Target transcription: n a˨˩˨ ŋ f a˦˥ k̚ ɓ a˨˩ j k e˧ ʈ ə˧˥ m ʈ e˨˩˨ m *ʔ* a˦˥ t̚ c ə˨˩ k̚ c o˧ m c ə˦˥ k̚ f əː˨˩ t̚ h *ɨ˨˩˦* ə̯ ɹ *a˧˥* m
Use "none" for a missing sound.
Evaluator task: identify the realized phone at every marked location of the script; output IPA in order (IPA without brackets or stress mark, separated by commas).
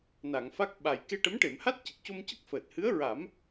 h, ɨ˧˥, a˨˩˦